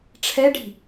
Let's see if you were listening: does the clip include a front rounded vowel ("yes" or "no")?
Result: no